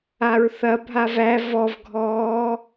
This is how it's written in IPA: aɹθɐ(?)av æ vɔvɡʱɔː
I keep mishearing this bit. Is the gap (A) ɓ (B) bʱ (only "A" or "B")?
B